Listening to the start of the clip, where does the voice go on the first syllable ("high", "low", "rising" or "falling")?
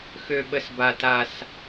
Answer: high